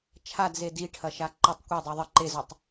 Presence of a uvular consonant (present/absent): absent